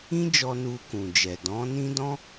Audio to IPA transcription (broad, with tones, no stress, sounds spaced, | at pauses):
ĩ˦ d͡ʒ ɔ˧ n u˧ k ũ˨ d͡ʒ ɛ˨ d ɔ̃˨˦ n ĩ˦ d ɔ̃˦